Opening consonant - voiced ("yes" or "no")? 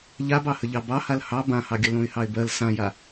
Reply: yes